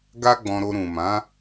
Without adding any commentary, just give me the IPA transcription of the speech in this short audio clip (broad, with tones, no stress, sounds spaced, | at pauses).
ɡ a˦ ɡ͡b ɔ̃˧ ɾ o˧ ɾ ũ˨ m ã˨˦